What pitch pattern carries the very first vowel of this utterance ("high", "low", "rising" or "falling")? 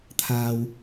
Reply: low